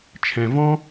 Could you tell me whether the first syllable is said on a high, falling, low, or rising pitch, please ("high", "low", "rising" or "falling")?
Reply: low